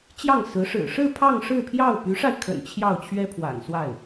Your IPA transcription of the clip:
t͡ɕ j ɑ˥˩ ŋ s ɹ̩˧˥ ʂ ɻ̩˨˩ ʂ ɻ̩˥˧ pʰ ɑ˥˧ ŋ ʂ ɻ̩˥˧ pʰ j ɑ˥˩ ʊ̯ p y˧˥ ʂ a˧ ɪ̯ kʰ ə̰˨˩ n t͡ɕʰ j ɑ˥˩ ʊ̯ t͡ɕʰ ɥ ɛ˥ pʰ w a̰˨˩ n s w a˥˩ ɪ̯

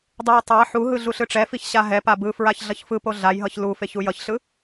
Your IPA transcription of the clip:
dˤ u j tˤ a ħ u ɦ ɯ ɮ u ɬ ɯ ʈ͡ʂ ɛ f i ç ɕ a ɦ ɛ p a b ɯ f ɹ a ç ɮ ʌ ç f ɯ p o ɮ a j ɦ ʌ ç l u f e ç u j ʌ ç ɬ ɯ

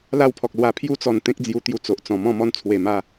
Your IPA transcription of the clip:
l a˥˧ w pʰ ɔ˨ k̚ l w a˧ pʰ j u˦ t͡s ɔ˨˩ n t̪ ẽ˦ k̚ d͡z j u˧ t̪ j u˧ t͡s o˨ ʔ t͡s ɔ̃˨˩ m ɔ̃˥˧ m ɔ˦ n t͡sʰ w e˨˩ m a˥˧

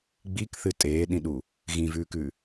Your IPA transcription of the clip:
ɡ͡b i k θ ɨ tʼ eː ɗ ĩ ɗ u | ɣ ĩ v ʉː k ʉ

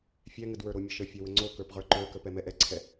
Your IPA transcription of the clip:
fʲ ɛ ŋ ə d w ə˞ ɾ o mʲ ə ʃ ə fʲ ɛ w ə ŋ͡ǀ o k ə˞ p ʁ ə˞ ǃ ə˞ k ə p ɛ m ɛ ʔ ɛ ǀʰ ɛ

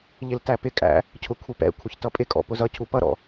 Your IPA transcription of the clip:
ʎ ɪ l t æ p ɪ kʼ æ̰ | cʰ ʊ kʷʰ ɪ p ɛ̰ kʷʰ ə ç t ʌ pʼ ɪ kʼ ɔ̰ p ʊ z ʌ cʰ u p ʌ ɾ ɔ̰

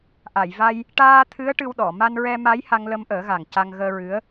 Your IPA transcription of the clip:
ʔ a˨˩˨ j v a˧ j | ʈ aː˧ t̪ʰ ɨ˧˥ ə̯ ʈ ɨ˧ w ɗ ɔ˨˩˨ m a˧ n ɹ ɛ˧ m a˧˥ j h a˧ ŋ l ə˧ m ʔ əː˨˩˦ ɣ a˨˩ ŋ c a˧ ŋ ɣ əː˧ ɹ ɨ˧˥ ə̯

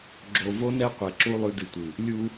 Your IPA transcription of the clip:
ɡ͡ǁ o˨ v o˦ n ɛ˦ qʷ ɛ˨ ǁ u˦ lˠ ʉ˦ d ɨ˨ tʷ ɨ˨ | lʲ u˦

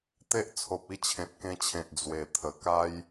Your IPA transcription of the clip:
t̪ e˦ ʔ t͡sʰ o˨ p̚ i˥˧ t͡ɕʰ ẽ˨ t̚ k ẽ˧ t͡ɕʰ ẽ˨ t̚ d͡z w e˨˩ t̪ʰ ə˨˩ k a˦ j

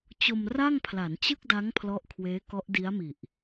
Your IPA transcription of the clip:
t͡ɕ o˧ m r a˥˩ ŋ pʰ l a˩˦ n t͡ɕ ɯ˥˩ k̚ d a˦˥ ŋ pʰ l ɔ˦˥ ʔ kʰ w eː˦˥ k ɔ˦˥ ʔ d i˦˥ a̯ m i˨˩ ʔ

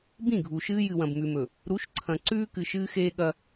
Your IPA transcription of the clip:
b ĩ˦˨ ɡʱ u˨ ʃ ɨː˦ j ɨ˨ w ɐ̃˨ b m ʉ˨ m ɵ˨ | ɾ u˨˦ ʃ ǀʰ ɐ̃˨ ǀ ʉː˦ k ɨ˨ ʃ ɨː˦ x eː˦ ɠ ɐ˦

